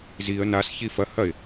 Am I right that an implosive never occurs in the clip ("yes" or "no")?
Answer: yes